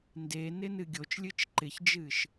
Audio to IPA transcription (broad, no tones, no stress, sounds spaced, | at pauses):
n d e n ɪ n ɨ ɡʲ o t͡ʃ lʲ ɨ t͡ʃ ǃ ɪ ç d͡ʒ ɨ ʃ